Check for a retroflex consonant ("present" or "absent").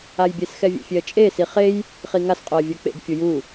absent